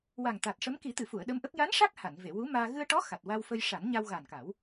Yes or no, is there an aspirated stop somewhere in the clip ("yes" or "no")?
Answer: no